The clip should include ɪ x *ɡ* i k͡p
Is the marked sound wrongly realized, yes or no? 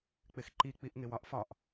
yes